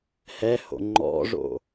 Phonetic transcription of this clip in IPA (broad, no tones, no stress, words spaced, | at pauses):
hɛho̰ ŋ͡ǃɔ̰ʐo̰